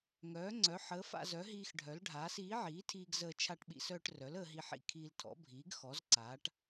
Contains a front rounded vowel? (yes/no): yes